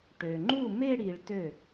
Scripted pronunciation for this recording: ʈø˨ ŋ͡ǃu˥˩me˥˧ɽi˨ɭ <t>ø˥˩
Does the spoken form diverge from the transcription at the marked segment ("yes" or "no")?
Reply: no